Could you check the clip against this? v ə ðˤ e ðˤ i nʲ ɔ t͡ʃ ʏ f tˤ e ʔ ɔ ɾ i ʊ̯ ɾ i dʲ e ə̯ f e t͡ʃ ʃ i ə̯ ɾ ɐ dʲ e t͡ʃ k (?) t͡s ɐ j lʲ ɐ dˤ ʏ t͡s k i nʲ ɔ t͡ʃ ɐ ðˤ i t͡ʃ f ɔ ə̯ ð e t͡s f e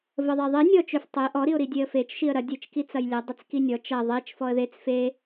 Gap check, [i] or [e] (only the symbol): i